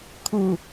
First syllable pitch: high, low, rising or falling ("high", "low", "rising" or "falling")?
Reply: low